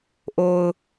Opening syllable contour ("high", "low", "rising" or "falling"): low